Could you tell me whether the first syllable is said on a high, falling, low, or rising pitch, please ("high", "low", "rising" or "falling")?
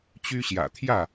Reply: high